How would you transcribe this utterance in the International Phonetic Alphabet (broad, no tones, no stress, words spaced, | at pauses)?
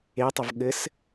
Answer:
etˤʌv ɠɘs